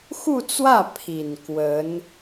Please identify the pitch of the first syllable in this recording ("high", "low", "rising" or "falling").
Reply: falling